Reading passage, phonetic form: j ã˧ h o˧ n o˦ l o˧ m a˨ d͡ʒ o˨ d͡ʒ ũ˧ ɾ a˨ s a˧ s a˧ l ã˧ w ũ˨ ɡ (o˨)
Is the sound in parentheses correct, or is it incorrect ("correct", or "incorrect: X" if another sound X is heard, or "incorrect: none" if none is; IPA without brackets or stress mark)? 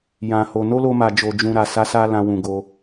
incorrect: o˧